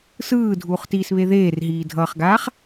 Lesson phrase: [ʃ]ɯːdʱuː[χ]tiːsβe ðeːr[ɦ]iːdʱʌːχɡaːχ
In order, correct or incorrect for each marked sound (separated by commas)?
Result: incorrect, correct, correct